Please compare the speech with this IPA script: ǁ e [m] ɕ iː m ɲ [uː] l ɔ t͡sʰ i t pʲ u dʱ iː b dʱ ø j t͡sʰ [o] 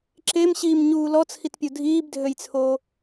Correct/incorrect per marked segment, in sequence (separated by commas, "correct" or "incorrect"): correct, correct, incorrect